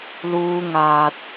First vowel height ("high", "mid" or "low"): high